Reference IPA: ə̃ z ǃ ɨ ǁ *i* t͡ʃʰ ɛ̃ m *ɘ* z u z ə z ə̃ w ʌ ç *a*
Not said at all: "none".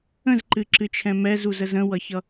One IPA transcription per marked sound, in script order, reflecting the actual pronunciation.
ɨ, ɛ, ʌ

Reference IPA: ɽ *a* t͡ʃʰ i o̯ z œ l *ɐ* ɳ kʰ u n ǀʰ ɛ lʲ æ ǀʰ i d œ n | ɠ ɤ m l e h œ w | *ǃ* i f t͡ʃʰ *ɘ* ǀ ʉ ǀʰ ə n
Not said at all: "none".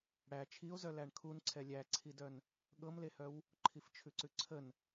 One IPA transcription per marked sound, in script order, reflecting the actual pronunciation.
æ, æ, ǃʰ, ʉ

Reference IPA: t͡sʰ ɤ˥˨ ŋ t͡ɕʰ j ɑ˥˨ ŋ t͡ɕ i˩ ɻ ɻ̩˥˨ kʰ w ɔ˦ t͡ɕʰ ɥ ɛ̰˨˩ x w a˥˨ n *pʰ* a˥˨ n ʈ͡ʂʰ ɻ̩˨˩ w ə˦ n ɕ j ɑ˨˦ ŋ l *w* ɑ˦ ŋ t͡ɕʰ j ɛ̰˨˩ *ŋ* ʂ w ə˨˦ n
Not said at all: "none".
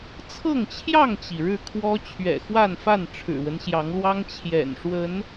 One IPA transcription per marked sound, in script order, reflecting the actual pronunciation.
f, w, n

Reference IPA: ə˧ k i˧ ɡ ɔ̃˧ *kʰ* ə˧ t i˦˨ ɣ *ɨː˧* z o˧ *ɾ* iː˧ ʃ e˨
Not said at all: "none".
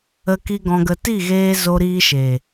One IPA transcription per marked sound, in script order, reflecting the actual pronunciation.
ɡ, eː˧, ɾ

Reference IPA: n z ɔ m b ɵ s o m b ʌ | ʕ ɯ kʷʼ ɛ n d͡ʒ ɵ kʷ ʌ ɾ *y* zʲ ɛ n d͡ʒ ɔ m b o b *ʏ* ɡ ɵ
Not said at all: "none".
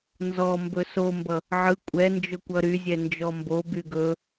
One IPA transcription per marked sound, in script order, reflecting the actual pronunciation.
y, y

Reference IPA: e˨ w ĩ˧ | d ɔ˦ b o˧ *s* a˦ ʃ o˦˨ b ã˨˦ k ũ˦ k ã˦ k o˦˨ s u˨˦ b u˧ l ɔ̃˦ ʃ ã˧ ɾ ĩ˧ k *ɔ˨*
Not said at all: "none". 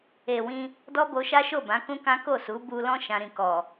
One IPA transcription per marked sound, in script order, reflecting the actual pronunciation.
ʃ, ɔ˨

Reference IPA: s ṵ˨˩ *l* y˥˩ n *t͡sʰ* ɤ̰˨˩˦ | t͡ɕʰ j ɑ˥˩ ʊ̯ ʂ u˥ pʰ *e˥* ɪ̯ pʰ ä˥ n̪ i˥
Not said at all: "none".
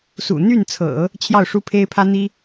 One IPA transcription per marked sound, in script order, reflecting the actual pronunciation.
n̪, t͡sʰ, e˥

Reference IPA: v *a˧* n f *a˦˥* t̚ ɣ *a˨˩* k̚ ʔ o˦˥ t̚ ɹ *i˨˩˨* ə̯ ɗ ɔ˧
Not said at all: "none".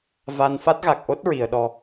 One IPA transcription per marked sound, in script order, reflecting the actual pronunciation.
a˧, a˦˥, a˨˩, i˨˩˨

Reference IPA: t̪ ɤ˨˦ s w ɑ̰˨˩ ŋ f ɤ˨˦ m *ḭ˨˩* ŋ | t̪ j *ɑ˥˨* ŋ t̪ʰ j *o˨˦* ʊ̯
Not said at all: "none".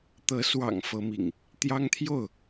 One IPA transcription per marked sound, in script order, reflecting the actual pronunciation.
ḭ˨˩, ɑ˦, o˥˨

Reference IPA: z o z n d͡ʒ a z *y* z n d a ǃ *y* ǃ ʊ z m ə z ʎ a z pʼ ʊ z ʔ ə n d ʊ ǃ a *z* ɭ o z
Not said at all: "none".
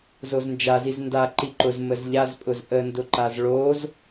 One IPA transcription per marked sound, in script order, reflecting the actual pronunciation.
i, i, z

